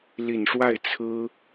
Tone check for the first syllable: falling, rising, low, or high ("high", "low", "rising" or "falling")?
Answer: low